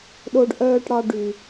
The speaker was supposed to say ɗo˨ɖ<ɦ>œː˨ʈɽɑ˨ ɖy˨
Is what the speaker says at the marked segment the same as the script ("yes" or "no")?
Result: no